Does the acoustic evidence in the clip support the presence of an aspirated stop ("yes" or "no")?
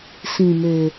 no